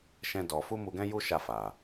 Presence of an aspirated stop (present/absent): absent